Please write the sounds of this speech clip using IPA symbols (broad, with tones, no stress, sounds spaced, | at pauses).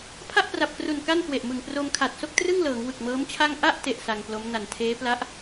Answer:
pʰ a˥˩ ʔ p r a˨˩ p̚ k r u˨˩ n k a˥˩ n k w e˨˩ ʔ m ɯ˨˩ ŋ p r o˧ m kʰ a˨˩ t̚ s o˥˩ k̚ t r ɯ˥˩ ŋ l ɤː˩˦ ŋ w ɯ˨˩ k̚ m ɤː˦˥ m t͡ɕʰ a˥˩ ŋ ʔ a˥˩ ʔ t e˥˩ ʔ s a˧ ŋ p l o˦˥ m n a˨˩ n tʰ eː˦˥ p l a˦˥ ʔ